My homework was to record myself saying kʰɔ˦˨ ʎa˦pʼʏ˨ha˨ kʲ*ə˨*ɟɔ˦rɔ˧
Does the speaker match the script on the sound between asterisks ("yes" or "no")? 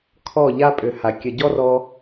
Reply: yes